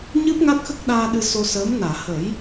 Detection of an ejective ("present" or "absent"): absent